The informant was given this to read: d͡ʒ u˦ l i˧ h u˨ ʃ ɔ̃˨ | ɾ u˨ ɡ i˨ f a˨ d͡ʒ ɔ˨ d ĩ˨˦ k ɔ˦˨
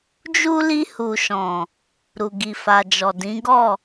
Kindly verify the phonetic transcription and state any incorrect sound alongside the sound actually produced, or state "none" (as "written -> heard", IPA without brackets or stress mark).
k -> ɡ